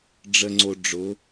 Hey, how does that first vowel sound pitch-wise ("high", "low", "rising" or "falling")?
low